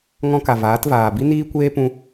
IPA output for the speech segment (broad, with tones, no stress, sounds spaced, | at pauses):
ŋ ɔ̃˦ k a˨ v aː˨˦ t v aː˨ b i˦ n iː˦ kʷ eː˦ p ũ˦